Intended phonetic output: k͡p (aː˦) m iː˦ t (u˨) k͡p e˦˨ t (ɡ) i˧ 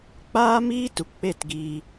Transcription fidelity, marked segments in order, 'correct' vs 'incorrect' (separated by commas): correct, correct, correct